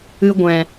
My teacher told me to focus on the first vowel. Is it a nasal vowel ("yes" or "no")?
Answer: no